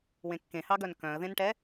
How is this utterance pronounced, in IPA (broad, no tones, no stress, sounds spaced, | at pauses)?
w ẽ kː ẽ h ɑ ɡ œ n k œ̃ ə̯ ð ẽ n ʈ ɛ